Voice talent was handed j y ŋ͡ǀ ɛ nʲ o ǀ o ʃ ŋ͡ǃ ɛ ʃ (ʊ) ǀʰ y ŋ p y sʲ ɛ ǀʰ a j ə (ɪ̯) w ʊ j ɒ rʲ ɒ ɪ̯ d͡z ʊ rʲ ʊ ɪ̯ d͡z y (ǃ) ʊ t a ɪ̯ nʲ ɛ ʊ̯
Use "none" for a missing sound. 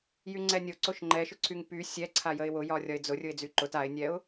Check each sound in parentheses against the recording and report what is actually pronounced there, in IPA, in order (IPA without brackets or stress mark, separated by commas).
ʊ, ɪ̯, ǃ